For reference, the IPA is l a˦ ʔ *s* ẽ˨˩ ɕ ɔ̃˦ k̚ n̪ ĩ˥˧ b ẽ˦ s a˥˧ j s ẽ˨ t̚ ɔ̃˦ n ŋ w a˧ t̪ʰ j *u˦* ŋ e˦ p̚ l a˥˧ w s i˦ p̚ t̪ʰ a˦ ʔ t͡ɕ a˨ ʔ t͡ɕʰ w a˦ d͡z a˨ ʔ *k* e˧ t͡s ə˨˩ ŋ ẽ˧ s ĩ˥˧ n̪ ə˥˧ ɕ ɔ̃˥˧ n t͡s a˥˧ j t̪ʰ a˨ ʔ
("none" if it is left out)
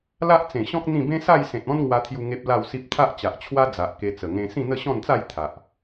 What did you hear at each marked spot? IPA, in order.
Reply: t͡s, u˧, k

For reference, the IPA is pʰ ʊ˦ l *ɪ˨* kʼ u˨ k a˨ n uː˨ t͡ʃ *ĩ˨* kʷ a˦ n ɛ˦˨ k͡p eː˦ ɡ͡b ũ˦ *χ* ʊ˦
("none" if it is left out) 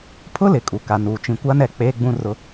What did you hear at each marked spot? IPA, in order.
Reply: ɪ˨, ĩ˨, r

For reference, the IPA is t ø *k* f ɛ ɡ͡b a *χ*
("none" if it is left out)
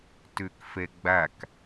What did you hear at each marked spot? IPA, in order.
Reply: k, k

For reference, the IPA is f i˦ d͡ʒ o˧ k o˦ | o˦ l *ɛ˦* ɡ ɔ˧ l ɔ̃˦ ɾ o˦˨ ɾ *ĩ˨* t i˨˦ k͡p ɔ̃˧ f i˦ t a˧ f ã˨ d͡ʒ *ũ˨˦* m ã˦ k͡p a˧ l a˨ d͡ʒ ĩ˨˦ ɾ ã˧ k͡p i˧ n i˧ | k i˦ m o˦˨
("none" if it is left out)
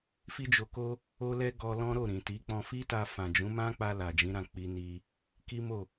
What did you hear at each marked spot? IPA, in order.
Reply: ɛ˦, ĩ˨, ũ˨˦

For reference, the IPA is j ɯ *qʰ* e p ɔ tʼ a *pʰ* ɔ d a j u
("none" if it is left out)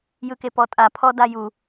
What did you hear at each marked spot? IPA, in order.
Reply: k, pʰ

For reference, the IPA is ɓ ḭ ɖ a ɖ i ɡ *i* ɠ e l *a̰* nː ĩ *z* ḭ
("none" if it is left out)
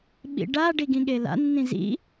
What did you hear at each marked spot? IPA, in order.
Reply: ĩ, a̰, z

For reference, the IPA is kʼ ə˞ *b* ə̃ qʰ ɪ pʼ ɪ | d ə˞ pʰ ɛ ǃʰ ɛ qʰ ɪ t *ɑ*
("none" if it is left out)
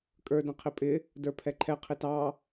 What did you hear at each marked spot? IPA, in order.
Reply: d, ɑ

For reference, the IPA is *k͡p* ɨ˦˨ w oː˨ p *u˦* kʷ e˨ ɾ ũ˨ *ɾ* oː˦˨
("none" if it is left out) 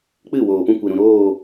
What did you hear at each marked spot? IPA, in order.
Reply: k͡p, ũ˦, ɾ

